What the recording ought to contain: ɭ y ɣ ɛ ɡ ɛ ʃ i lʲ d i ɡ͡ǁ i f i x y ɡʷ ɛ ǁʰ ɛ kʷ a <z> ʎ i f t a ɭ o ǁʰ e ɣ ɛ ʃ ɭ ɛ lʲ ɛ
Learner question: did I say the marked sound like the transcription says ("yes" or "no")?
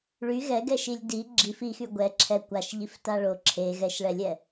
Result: no